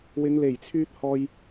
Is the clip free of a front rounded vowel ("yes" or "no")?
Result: no